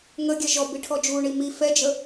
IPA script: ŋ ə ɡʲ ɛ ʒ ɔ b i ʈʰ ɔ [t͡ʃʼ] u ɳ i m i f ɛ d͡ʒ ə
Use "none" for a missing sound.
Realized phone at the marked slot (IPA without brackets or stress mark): d͡ʒ